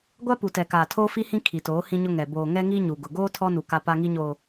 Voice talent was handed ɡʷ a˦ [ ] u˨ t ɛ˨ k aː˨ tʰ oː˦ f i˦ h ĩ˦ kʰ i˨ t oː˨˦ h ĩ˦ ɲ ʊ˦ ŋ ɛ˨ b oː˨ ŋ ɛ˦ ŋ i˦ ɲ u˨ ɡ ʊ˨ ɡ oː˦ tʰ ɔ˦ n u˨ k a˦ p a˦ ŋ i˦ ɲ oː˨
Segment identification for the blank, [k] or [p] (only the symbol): p